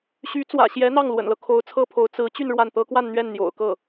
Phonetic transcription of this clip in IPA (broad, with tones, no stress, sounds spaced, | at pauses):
ɕ y˧˥ t͡s w ä̰˨˩ ɕ j ɛ˧˥ n̪ ɑ˥˩ ŋ l w ə̰˨˩ n l ɤ˦ kʰ o˧˥ ʊ̯ t͡sʰ ɤ˥ pʰ o˧˥ ʊ̯ t͡s ɹ̩˧˥ t͡ɕ y˥˧ n ɻ w a˥˩ n t̪ ɤ˥ k w a˥˧ n n̪ ɥ ɛ˥˩ n n̪ j o̰˨˩ ʊ̯ k ɤ˥˩